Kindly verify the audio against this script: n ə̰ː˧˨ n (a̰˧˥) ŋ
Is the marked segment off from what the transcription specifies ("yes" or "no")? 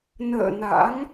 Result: no